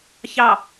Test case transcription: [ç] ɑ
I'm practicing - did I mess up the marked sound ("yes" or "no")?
no